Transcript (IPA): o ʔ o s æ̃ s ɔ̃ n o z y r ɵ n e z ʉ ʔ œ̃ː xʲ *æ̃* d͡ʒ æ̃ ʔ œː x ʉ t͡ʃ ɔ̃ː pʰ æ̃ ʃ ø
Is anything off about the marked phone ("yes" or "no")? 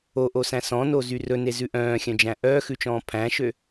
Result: yes